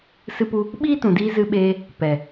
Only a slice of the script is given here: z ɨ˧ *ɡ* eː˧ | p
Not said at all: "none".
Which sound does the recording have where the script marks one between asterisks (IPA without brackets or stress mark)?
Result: ɓ